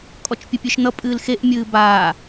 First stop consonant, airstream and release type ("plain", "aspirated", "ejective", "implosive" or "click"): ejective